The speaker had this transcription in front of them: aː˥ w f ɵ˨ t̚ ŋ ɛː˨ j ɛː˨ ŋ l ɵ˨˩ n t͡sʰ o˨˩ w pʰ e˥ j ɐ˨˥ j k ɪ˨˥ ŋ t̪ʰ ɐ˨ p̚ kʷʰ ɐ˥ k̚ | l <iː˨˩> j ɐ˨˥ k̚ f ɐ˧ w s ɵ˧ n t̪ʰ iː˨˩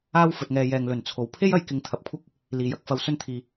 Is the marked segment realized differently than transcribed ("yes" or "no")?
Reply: no